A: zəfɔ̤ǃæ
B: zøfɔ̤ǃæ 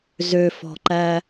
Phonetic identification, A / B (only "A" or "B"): B